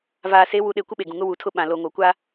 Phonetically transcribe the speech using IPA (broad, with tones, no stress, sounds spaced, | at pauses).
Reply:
v aː˨ s e˨˦ w u˨ ɗ e˨ kʷ ɪ˦ ɓ e˨ ɡ ũ˨ ŋ ʊ˦ w u˨ tʰ ʊ˦˨ ɓ ã˨ l o˨ ŋ o˨ kʷ a˦